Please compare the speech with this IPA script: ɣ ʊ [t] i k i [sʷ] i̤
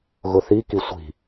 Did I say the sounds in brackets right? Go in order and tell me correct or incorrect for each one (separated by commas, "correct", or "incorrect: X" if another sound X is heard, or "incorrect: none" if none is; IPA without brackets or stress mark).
incorrect: θ, correct